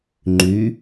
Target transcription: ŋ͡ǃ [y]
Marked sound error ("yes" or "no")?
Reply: no